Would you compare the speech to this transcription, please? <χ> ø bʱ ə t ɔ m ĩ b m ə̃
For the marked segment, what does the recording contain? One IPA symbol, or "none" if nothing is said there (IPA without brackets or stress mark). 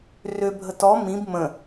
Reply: r